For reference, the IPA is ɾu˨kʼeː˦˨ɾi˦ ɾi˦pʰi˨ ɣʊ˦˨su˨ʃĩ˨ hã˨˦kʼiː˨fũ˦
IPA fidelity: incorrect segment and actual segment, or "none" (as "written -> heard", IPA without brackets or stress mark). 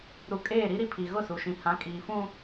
none